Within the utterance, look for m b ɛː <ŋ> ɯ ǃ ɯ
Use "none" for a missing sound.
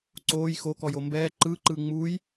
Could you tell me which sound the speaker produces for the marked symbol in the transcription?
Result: ǃ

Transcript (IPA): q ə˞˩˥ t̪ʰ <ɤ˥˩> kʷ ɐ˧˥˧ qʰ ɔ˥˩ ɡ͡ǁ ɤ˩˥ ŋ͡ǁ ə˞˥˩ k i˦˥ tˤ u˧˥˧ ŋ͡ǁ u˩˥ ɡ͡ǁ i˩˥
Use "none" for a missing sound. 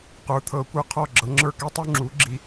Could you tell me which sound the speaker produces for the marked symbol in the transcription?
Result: ɤ˩˥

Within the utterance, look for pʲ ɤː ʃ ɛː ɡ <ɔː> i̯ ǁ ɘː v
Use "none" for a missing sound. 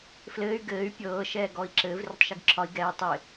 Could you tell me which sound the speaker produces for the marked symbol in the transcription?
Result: ɔː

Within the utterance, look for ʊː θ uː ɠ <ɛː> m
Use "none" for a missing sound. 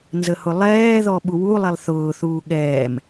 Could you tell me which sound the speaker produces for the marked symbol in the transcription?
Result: ɛː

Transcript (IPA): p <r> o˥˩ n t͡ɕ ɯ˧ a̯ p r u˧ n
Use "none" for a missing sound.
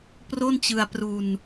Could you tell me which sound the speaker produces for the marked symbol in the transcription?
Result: r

